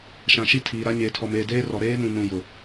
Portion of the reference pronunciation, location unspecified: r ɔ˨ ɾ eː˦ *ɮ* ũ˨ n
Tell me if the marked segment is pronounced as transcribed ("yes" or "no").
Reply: no